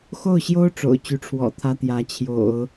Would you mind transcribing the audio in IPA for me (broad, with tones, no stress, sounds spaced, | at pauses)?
x o˥˩ ʊ̯ ɕ j o˥ ʊ̯ ʈ͡ʂ o̰˨˩ ʊ̯ t͡ɕ y˧˥ ʈ͡ʂʰ w ɔ̰˨˩ t̪ʰ ä˥ t̪ j ä˧˥ t͡ɕʰ j o̰˨˩˦ ʊ̯